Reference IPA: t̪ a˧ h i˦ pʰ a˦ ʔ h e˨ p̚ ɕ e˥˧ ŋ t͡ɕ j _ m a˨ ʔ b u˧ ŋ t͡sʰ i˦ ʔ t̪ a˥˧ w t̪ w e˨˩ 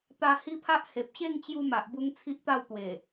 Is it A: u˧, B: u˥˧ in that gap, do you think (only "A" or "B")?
A